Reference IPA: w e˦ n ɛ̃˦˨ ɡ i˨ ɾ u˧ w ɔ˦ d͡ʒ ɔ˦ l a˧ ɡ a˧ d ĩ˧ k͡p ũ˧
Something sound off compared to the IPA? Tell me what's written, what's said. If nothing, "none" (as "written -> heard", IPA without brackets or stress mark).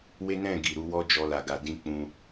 none